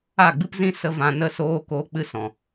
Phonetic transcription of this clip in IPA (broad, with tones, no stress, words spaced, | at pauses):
a˦˨ ɡ͡bɨ˦pzĩ˦ sə˧vã˨ nə˦soː˦ koː˦k͡pɨ˦sɔ̃˨